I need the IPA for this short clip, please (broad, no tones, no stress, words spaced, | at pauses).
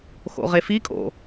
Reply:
xo̰ʁefikʼo̰